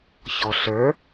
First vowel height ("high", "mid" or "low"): mid